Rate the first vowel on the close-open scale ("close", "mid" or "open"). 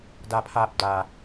open